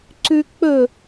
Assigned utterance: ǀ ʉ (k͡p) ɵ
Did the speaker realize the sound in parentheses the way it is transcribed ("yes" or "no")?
yes